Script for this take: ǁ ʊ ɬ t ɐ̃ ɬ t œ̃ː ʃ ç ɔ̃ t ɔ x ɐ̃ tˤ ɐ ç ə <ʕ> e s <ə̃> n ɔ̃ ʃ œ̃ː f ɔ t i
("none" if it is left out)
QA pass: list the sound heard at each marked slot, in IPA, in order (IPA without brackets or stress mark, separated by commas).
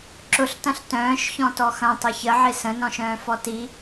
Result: ʕ, ə̃